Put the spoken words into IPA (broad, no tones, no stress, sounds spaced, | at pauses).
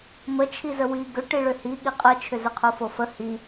m ə t͡ʃʰ i z ə w i ɡ ʏ ʈ i ɭ ʏ h i ɠ i qʼ ə t͡ʃʰ ʏ z ə qʰ o f o f ə h i